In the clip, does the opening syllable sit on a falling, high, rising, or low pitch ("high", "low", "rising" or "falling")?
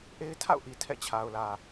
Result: high